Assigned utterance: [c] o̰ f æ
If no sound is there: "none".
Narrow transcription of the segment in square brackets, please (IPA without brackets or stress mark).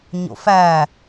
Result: ɲ